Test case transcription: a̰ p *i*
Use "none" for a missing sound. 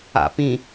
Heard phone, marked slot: ĩ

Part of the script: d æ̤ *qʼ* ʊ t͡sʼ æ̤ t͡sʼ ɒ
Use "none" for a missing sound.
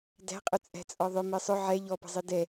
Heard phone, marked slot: qʼ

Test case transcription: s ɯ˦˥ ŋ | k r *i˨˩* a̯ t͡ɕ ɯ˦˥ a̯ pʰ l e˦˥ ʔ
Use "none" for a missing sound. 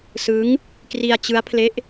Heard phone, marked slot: i˧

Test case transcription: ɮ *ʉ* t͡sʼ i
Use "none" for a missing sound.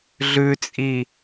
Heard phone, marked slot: ʉ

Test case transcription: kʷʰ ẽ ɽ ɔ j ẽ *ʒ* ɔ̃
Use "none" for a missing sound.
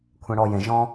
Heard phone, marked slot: ʒ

